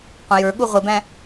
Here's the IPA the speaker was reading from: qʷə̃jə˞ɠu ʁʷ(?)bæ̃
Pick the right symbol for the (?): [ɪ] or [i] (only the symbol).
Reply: ɪ